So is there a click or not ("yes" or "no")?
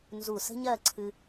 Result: yes